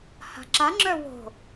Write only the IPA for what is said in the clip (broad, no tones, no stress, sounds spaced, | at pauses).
h a̤ ǁ a ŋ͡ǁ œ w o̤